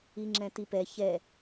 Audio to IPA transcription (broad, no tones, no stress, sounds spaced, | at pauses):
i ŋ͡ǁ ɛ̃ t i p ɛ ç ɛ